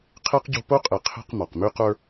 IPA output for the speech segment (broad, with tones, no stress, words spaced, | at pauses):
qʰe˥qɟo̤˦po˥qʼe˨ qʰe̤˦q mɒ˩qmy˦qə˞˦